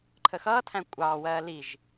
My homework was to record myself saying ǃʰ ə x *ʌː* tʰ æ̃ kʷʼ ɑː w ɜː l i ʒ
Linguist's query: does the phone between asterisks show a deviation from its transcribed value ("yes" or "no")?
no